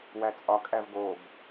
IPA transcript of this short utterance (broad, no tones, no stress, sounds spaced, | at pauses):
w æ t͡sʼ ɒ kʼ æ v ɡ o b